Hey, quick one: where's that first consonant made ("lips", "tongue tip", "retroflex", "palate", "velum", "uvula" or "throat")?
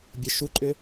lips